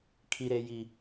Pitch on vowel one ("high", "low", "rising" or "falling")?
low